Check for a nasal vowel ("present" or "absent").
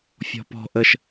absent